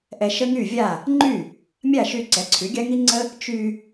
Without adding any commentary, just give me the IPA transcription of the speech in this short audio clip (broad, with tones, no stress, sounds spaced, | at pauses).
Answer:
ʔ ɛ˧ ʃ ə˥ ŋ y˥˩ vʲ a˥˩ | ŋ͡ǃ y˥˩ | mʲ a˥˩ ʃ y˧ ǀ ɛ˩˥ ǀʰ y˩˥ ɡʲ a˥ ŋ i˥ ŋ͡ǀ ə˥ | t͡ʃ y˧